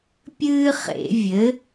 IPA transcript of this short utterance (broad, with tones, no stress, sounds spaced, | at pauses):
pʲ ɨː˥ χ ḛ˨˩˦ vʲ ɘ˩˥